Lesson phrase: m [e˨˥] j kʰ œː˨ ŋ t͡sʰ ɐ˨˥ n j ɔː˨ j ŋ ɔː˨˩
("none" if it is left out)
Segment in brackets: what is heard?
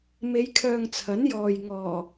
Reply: e˨˧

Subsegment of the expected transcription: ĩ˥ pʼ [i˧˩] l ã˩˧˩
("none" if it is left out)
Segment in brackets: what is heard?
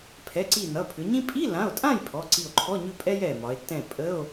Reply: i˧˥˧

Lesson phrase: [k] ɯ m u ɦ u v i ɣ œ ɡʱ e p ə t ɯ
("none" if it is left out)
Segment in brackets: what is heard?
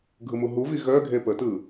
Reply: ɡʱ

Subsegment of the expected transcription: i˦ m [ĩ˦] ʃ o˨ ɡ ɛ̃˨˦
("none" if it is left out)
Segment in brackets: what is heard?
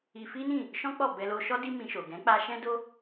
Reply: ĩ˧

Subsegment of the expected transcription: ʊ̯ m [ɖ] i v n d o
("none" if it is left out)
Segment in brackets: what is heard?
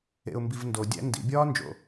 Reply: b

